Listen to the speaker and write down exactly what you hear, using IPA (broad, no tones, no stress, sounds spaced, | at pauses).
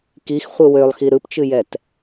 k i x χʷ ɨ w ø lˠ x i ɾ ɯ p t͡ʃ ɨ j ɛ t